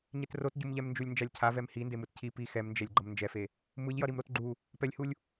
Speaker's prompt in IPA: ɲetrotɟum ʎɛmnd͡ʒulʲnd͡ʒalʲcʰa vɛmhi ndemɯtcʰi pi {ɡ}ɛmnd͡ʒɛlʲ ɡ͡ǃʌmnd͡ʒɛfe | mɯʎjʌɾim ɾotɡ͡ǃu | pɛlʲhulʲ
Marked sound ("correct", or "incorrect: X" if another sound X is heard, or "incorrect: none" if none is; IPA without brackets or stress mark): incorrect: x